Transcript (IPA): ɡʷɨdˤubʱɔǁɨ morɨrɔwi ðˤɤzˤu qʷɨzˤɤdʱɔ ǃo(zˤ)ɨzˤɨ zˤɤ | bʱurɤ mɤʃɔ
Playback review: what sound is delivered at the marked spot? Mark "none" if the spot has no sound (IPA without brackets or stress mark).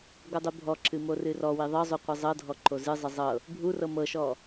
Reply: z